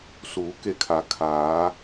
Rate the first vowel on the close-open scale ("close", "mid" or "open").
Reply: close